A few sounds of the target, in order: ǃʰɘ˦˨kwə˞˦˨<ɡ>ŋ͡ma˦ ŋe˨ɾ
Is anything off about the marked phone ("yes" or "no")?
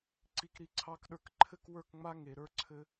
yes